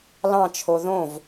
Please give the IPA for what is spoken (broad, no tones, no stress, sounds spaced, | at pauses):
l ɑ̃ t͡ʃʰ o ð õ v